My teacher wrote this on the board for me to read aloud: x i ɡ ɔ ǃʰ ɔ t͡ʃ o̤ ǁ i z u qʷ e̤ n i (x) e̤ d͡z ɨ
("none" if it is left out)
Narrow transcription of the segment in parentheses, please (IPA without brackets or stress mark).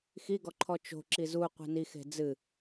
x